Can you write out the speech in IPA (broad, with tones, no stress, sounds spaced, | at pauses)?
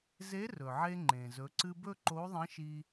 z e˧˥ r ɵ˩ ʕ e˧ ŋ͡ǃ ẽ˩ z ɵ˩˧ ǀ ɨ˧ b ɵ˥ ǃ o˧˥ ðˤ ɐ̃˧˥ ʃ i˧